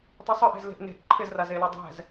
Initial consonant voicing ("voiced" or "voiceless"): voiceless